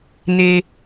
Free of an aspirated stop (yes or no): yes